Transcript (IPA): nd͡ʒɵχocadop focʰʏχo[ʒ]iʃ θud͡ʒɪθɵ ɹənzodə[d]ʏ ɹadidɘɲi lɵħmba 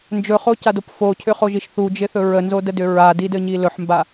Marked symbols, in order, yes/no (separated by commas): yes, yes